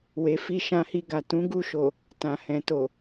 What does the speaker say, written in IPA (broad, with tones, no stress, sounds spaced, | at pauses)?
w e˨ f i˧ ʃ ã˧ h i˧ ɡ a˨ t ũ˨˦ ɡ u˦˨ ʃ o˨ | t ã˨ h ɛ̃˨ t o˨